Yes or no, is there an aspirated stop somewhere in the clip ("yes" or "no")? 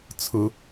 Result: yes